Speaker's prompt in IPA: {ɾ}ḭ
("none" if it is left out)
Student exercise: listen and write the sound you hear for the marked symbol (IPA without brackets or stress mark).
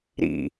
ɾ